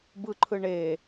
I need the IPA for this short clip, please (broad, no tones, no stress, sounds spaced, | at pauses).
b ɯ ǃʰ ɯ ɳ e